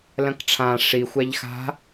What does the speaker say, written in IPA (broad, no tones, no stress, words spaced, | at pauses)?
lɐ̃kʈ͡ʂʰã ʂi xʷaʎxa̤